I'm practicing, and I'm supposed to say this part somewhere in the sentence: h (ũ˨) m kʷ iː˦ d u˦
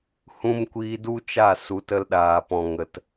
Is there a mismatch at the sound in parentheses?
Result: yes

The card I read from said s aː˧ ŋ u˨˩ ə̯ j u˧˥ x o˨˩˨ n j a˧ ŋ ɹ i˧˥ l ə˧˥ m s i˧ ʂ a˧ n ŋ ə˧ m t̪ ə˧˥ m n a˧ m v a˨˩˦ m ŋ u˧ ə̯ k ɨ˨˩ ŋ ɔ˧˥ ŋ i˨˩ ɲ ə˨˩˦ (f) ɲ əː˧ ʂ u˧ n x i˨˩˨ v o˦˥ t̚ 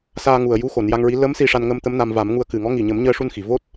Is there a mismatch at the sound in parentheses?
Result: yes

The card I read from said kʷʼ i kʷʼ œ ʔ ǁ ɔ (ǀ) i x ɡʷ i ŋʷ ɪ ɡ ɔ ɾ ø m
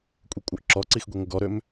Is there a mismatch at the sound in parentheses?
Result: no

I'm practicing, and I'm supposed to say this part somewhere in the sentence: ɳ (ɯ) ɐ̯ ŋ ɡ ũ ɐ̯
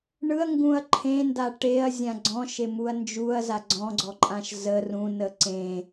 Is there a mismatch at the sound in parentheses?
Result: no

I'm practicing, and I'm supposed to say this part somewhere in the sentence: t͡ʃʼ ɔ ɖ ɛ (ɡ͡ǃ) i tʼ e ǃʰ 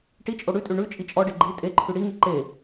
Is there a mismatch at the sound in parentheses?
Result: no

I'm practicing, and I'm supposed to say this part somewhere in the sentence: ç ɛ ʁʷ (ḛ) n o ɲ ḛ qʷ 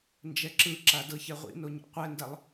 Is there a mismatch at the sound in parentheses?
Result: yes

